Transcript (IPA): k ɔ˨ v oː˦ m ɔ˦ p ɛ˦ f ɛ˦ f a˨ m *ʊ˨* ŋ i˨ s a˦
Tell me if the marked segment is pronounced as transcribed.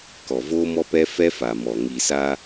no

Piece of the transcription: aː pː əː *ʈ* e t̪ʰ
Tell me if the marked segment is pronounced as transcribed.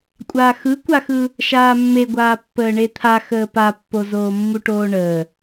no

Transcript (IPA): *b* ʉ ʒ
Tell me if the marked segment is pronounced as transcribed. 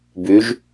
yes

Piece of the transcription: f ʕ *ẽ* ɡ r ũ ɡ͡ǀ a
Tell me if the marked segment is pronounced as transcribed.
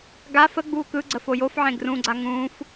yes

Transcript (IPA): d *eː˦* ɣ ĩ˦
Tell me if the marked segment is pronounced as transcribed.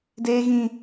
yes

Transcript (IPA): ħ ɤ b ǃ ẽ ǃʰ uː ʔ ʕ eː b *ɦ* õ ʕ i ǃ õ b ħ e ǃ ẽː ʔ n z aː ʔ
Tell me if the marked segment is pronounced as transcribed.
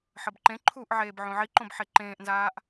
no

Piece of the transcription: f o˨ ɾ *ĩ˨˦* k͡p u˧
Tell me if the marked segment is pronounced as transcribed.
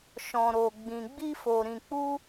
no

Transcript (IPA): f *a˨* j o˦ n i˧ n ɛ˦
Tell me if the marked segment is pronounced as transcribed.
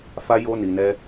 no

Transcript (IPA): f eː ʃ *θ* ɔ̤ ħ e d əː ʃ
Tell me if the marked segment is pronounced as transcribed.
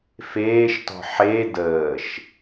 no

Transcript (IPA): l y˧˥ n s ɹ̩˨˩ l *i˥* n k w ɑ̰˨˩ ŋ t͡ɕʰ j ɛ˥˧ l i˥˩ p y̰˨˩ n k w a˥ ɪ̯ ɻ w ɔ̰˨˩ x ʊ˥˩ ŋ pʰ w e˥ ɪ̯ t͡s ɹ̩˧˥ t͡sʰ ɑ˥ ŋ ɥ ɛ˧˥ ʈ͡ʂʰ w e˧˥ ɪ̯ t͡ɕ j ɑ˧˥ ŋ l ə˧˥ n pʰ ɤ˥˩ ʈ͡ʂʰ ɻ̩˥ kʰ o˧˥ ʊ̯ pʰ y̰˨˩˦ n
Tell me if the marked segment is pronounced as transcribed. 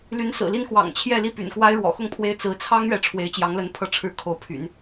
yes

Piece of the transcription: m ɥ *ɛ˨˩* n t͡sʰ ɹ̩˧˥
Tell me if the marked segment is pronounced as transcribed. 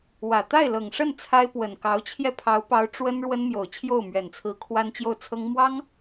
yes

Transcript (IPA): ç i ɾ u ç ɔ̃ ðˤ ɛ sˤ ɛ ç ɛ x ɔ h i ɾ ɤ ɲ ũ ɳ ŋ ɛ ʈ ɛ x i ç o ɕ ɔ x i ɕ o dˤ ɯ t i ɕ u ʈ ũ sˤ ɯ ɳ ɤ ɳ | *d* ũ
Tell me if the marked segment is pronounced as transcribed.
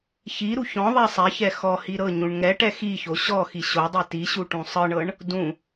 yes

